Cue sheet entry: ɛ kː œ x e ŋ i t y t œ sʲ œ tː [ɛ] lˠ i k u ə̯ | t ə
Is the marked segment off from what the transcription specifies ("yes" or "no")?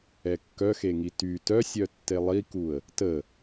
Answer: yes